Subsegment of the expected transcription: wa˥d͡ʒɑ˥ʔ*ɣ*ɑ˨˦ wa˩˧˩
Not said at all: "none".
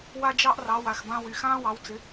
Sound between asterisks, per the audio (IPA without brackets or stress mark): r